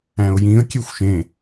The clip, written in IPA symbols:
æ̃ʊ̯jĩə̯ kʲexʷʃẽ

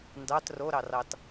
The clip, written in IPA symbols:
ndɑt roɾɑrɑt

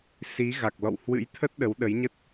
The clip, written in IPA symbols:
si˨˦ɣa˨˩k̚lɔ̰˧˨w hwɨ̰˧˥jt̪ʰə˦˥t̚ ɗə˨˦wɗə˨˦jɲə˦˥t̚

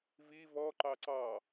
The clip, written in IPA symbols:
vi vɔ ǃɑǀɑ

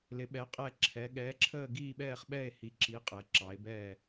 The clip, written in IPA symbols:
lɪ˨˦ɓɛ˨˦ qʼɛ˦˨ ǁʰɛ˨˦ ɠɛː˨˦ǁʰəː˦˨ ɡiː˦˨ɓɛː˦˨χɓɛ˦˨e̯ hi˨˦ǁi˨˦ qʼɛ˨˦ǁɑ˨˦e̯ bɛː˦˨

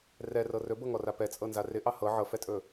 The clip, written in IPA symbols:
rɛrɤ rɵbɤŋɔra pɛt͡sʼɤnza rɪʔɑ hɤ ʕɤfɛtʼɵ

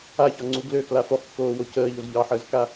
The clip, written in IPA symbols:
açɒŋ͡ǀu ɡløkla foχkːoːwo cəːʎoz ʎɑħəːzka

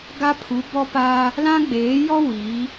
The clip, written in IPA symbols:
ɡa˦pʰu˨˦bɔ˦pa˦ | lã˦ɡ͡beː˨˦jɔ˦ wi˨˦

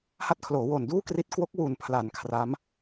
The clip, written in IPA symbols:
ha˦˥t̚kʰloː˩˦woː˨˩n duː˥˩kri˦˥t̚ kwo˦˥k̚wu˨˩npʰla˩˦n kʰra˦˥m

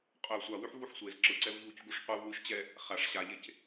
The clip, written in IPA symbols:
qʼœ sʷawʉħ vuħsʷez ǁɯǀɛv ʎuc ɡuʂqʷɯv wɯʃt͡ɕɛ | χaʂ ɕaʎec

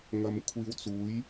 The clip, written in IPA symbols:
ŋɐ˧m kʷʰiː˧wt͡suː˨˥j

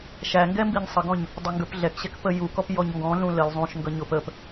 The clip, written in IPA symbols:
ʃæŋɡɛ mbiɲsˤəɡɔ̃ɲ | dˤəŋɡə˞pɮɛkɕɛk pəjukɔp jɔɲŋɡɔ̃ɮũ ləl zˤũʃŋɡʌ ɲʊp əp

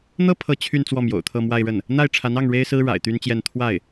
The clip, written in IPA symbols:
n̪ɤ˥pʰɤ˧˥ t͡ɕʰy˥˧n t͡swɔ˥˩mjo̰˨˩ʊ̯t̪ʰɤ˥˧ mwa˥˧ɪ̯ɻə˥˩n | n̪a˥˩ɪ̯ʈ͡ʂʰa˧˥nɑ˥˩ŋ ɻe˥ɪ̯sɹ̩˥ ɻa̰˨˩ɪ̯t̪y˥nt͡ɕjɛ˥˧n t̪ʰwa˥˩ɪ̯

